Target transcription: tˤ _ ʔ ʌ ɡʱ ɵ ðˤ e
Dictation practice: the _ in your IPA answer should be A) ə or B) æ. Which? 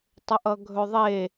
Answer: A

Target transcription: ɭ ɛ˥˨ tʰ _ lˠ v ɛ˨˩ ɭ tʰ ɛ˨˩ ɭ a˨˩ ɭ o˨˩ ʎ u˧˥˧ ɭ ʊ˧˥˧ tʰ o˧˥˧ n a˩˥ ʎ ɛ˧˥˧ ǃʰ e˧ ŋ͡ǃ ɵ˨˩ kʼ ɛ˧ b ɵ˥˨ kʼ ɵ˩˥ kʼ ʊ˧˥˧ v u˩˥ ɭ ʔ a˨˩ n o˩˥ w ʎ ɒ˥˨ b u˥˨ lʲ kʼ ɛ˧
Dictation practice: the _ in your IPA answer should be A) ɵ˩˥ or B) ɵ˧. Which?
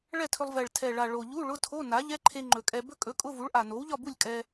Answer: B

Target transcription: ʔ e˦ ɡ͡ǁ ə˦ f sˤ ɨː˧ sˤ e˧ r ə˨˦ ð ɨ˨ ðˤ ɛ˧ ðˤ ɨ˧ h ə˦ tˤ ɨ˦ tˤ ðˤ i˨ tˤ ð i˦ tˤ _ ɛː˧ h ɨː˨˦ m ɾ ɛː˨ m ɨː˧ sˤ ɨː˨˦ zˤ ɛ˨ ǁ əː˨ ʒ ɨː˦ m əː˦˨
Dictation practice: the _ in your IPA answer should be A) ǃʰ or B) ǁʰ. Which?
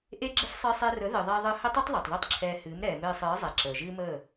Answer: B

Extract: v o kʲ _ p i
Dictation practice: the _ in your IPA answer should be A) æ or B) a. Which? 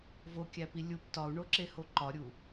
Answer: A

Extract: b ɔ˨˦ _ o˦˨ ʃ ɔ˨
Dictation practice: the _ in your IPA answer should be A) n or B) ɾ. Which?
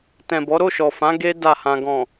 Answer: B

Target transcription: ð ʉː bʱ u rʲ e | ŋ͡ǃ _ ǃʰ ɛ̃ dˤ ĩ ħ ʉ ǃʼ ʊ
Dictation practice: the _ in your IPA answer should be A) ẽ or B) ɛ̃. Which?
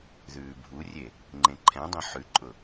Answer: A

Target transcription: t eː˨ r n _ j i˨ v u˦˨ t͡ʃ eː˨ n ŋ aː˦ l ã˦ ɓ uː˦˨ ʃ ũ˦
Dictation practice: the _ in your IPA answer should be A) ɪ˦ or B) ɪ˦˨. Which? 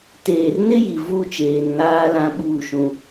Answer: A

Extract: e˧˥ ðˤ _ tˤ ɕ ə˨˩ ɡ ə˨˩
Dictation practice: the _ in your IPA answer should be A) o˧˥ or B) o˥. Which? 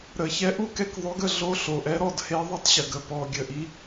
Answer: B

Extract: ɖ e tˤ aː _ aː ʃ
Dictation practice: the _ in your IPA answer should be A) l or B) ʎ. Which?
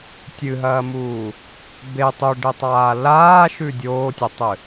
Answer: A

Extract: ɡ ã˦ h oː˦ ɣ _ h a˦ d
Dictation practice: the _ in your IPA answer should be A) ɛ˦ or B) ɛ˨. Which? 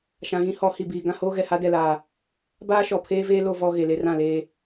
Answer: B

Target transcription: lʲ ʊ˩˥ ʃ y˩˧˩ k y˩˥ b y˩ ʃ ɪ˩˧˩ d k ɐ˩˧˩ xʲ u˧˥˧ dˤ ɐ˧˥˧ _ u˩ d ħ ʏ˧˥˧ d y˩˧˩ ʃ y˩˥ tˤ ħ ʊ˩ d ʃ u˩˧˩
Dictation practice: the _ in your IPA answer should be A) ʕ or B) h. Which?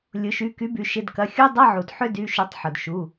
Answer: A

